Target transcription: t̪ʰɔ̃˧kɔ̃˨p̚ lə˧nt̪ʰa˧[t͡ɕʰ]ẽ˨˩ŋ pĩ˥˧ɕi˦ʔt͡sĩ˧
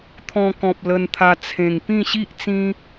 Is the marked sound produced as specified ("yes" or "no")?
no